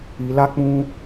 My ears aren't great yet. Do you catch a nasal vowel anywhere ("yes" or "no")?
yes